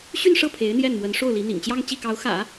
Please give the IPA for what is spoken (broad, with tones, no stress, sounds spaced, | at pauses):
ɕ y˥˧ n ʂ ɤ˥˩ pʰ e˧˥ ɪ̯ n̪ j ɛ˥˩ n m w ə˧˥ n ʂ o˥˩ ʊ̯ l i˧˥ n̪ ḭ˨˩ ŋ t͡ɕ j ɑ˥˧ ŋ t͡ɕ i˥˩ k ɑ˧˥ ʊ̯ x ä̰˨˩˦